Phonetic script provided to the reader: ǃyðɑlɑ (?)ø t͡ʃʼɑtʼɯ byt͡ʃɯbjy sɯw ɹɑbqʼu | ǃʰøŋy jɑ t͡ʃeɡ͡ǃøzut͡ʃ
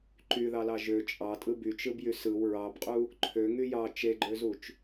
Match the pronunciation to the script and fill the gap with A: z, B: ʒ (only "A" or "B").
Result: B